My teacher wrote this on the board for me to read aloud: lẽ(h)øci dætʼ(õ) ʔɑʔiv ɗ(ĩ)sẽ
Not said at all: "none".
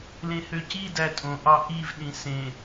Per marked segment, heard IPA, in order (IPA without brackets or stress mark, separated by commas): h, õ, ĩ